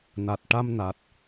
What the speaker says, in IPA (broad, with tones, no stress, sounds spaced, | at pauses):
n a˨˩ t̚ ʈ a˧ m n a˨˩ t̚